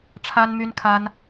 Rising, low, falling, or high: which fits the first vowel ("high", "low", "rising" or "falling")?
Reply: high